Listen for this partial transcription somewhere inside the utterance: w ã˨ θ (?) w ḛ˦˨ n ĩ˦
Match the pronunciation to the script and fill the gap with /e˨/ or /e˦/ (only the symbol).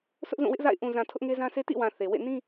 e˨